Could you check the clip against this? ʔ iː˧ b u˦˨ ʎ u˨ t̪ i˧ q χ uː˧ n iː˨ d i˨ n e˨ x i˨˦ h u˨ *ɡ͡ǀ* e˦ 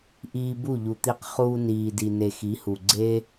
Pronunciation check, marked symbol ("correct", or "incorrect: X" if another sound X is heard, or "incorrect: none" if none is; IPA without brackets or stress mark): correct